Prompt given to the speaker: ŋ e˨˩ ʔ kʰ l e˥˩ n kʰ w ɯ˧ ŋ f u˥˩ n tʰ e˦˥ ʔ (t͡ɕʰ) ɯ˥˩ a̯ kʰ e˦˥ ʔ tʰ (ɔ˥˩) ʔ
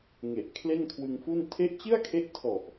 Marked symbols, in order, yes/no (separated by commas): no, no